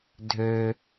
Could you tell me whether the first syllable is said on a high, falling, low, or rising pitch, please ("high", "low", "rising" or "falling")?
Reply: low